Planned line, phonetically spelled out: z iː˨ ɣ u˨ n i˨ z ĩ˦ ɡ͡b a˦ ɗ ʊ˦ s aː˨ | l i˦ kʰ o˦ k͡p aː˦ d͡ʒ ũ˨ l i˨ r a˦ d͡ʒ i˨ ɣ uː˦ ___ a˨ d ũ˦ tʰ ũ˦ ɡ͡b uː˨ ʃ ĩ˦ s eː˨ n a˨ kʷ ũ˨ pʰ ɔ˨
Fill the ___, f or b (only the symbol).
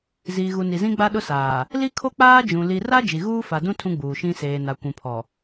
f